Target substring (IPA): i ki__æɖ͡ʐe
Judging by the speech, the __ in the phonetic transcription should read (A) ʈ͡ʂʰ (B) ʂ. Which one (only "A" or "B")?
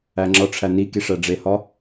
B